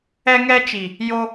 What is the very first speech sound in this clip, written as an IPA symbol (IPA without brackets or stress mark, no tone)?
ɛ